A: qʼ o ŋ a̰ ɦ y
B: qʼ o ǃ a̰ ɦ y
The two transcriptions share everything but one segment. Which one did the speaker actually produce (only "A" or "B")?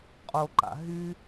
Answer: B